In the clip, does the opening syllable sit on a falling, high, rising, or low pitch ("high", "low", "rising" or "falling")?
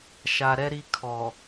low